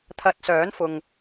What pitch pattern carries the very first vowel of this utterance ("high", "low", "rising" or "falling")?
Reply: low